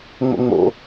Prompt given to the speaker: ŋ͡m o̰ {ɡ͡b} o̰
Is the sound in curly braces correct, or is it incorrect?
incorrect